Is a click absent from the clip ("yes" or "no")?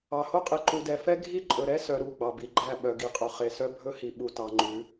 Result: no